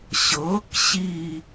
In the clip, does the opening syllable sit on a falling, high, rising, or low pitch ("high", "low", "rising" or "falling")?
rising